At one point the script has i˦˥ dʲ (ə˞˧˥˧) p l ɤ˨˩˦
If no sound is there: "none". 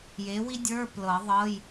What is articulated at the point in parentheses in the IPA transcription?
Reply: ə˞˧˥˧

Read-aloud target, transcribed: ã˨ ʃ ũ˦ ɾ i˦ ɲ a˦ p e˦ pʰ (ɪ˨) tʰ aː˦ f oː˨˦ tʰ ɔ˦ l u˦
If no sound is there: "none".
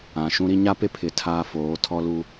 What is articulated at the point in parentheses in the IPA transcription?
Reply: ɪ˨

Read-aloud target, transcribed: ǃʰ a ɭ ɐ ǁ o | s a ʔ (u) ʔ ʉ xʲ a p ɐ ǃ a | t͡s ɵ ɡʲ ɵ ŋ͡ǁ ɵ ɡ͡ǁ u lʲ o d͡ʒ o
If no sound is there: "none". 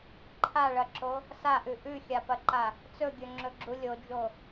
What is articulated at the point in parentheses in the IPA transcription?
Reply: ʉ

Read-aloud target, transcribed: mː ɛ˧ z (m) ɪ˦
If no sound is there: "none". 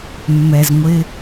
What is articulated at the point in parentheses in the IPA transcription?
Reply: ŋʷ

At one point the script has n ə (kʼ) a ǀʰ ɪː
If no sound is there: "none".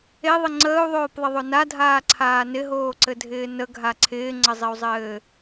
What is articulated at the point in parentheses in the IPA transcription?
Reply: ɡʱ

